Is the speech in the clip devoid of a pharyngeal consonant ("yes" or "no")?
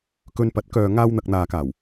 yes